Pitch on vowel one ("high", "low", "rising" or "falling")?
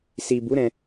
low